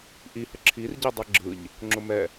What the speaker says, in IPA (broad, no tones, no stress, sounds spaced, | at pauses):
ʔ i h ə ǁʰ i r ɟ i dˤ ɯ ɡ͡ǁ ɯ ʎ | ŋ͡ǁ ʊ m ɛ